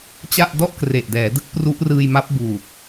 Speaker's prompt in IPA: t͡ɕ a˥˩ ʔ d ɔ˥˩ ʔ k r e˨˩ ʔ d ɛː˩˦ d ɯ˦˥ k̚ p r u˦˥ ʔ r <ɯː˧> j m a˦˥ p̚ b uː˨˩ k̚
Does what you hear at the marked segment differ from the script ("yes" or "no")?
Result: no